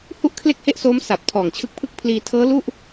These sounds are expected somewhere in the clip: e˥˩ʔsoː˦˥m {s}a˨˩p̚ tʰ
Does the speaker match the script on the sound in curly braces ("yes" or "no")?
yes